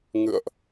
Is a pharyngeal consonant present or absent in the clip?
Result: absent